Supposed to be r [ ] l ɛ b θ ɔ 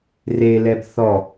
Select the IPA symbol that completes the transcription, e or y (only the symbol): e